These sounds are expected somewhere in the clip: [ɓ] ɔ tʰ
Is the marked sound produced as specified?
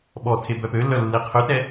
yes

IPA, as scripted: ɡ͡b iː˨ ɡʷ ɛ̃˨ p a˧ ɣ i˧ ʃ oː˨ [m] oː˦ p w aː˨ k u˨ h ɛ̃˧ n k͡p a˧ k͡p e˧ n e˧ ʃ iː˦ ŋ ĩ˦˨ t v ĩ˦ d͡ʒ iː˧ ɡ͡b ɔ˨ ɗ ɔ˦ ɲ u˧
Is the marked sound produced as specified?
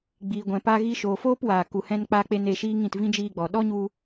no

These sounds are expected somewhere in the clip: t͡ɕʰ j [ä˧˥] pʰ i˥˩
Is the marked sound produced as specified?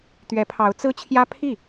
no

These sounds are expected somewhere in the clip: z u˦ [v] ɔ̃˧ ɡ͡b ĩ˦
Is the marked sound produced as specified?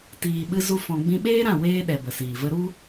no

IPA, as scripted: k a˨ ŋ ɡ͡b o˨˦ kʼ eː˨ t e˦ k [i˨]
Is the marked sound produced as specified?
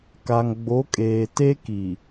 yes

